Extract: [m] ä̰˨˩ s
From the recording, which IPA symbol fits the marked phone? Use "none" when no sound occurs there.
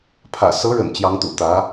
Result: pʰ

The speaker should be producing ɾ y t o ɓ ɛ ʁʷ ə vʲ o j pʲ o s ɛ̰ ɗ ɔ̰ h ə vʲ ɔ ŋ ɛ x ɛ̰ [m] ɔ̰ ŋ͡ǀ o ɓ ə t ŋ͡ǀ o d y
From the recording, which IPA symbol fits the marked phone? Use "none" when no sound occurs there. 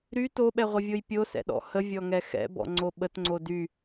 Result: b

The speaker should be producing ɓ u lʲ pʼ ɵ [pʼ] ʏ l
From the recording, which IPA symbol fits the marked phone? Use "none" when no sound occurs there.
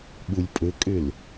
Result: kʼ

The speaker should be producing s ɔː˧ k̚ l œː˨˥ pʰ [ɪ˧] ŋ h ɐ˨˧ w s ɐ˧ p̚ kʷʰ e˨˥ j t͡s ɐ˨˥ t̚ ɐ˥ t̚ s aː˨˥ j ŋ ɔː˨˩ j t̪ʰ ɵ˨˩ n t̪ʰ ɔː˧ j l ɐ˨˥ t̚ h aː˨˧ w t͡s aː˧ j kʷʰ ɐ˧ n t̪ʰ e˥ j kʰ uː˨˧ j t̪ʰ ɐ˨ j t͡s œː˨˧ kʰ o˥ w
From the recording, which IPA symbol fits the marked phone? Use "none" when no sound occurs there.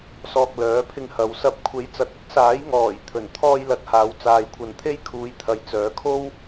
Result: ɪ˧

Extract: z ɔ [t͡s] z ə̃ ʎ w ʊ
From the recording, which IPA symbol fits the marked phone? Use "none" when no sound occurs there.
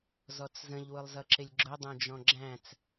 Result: t͡s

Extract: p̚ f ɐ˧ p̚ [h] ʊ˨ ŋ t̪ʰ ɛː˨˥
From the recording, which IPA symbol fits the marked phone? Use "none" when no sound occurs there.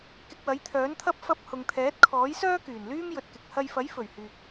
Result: h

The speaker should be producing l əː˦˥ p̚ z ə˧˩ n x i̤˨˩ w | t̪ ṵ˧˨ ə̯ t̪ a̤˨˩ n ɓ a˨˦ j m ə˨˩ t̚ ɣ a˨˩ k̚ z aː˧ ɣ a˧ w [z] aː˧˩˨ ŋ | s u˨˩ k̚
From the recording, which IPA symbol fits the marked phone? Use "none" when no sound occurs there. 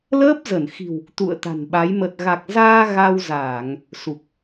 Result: z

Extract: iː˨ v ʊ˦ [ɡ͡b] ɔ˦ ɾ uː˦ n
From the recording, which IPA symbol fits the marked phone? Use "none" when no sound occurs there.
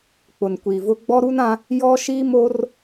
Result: ɡ͡b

